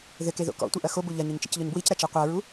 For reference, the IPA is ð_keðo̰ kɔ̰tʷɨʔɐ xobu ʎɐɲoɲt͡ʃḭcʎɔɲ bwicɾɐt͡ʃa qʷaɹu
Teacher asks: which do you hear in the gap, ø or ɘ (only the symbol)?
ɘ